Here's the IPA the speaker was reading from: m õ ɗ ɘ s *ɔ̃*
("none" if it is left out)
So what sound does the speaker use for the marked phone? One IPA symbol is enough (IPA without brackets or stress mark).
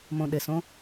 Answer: õ